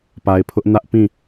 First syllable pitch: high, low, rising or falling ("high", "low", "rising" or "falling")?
low